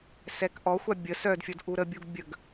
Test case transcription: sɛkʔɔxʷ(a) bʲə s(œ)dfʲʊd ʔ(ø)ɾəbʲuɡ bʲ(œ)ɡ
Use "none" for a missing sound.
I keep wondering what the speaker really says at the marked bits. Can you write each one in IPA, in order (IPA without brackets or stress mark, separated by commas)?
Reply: a, œ, u, ə